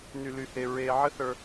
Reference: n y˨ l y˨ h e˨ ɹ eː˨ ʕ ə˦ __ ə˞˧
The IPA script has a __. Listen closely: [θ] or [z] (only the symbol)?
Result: θ